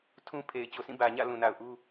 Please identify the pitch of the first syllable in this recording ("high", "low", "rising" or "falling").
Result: high